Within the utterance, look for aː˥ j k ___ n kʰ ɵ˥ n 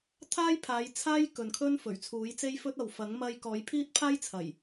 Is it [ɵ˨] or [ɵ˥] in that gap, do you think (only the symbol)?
ɵ˨